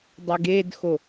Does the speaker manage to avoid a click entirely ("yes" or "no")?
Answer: yes